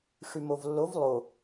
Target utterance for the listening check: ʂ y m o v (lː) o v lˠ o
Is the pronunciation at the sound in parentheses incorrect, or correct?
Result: correct